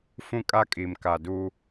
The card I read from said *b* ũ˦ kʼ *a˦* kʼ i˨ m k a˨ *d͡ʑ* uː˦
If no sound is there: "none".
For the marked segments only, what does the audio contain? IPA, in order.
f, a˦, d

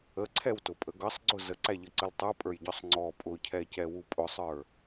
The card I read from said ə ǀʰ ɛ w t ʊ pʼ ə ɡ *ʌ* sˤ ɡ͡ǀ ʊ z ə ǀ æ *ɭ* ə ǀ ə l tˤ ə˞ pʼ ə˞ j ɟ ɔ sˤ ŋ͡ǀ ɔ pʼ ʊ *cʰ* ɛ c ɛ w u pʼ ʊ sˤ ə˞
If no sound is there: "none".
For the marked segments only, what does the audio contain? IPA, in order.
ʌ, ʎ, cʰ

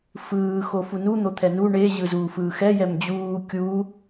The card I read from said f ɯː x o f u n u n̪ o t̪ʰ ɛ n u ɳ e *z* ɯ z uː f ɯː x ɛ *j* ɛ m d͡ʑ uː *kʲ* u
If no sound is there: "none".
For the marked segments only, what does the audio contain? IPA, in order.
ʑ, j, kʲ

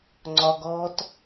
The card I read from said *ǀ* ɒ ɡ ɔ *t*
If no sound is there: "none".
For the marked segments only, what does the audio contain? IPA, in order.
ŋ͡ǀ, t

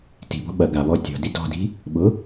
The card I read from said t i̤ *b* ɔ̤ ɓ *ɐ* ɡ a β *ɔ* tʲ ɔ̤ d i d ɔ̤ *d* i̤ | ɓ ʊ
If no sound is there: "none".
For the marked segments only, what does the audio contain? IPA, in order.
b, ɐ, ɔ, d

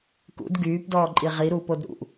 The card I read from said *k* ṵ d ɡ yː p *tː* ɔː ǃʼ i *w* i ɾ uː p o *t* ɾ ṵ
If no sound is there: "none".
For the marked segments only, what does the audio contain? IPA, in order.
k, d, ʁ, d

